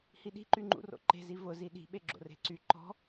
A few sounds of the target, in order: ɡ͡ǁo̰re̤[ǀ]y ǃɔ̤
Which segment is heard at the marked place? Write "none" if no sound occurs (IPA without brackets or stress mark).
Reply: ǀ